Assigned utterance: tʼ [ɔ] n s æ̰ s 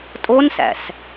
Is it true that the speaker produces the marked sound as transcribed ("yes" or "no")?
no